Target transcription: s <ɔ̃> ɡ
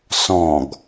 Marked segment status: correct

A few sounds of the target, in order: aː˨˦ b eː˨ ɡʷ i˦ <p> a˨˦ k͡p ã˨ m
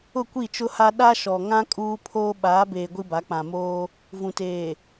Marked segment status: incorrect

